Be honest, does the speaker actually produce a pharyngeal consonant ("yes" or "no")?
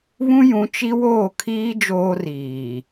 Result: no